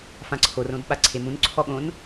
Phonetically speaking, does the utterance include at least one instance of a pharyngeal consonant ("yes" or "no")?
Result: no